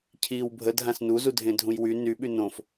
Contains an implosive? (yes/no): yes